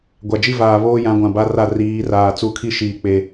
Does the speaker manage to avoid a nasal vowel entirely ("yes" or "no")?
no